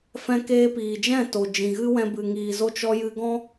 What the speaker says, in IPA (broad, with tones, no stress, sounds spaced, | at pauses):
f ɛ̃˦ k eː˧ p iː˨ d͡ʒ ɛ̃˦˨ t o˨ d͡ʒ ĩ˨ ɣ ɨ˦ w ɛ̃˧ b ɨ˨ ŋ iː˨ z o˦ t͡ʃ ɔ˧ j ɨ˧ ɡ ɔ̃˦